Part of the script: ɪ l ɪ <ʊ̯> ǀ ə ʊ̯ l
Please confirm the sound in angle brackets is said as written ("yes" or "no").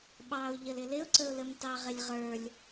yes